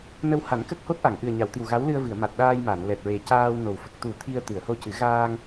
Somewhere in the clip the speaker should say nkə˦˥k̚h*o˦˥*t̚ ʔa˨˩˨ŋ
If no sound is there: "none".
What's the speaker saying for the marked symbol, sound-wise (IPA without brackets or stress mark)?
o˦˥